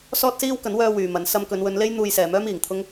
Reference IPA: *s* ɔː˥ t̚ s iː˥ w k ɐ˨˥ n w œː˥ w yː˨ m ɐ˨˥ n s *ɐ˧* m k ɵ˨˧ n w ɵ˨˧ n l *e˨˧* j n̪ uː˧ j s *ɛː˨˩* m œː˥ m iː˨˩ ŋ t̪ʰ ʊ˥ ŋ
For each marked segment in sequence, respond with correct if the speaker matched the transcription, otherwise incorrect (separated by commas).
correct, correct, incorrect, incorrect